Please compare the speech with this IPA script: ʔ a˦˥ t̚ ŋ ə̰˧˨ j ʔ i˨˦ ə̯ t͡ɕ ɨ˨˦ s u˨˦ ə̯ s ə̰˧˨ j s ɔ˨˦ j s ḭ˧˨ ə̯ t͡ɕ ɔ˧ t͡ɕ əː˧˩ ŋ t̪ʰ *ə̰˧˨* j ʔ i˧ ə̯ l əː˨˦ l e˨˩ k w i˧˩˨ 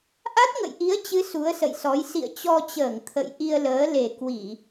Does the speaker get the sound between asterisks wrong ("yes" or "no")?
no